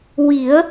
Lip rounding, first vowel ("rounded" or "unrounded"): unrounded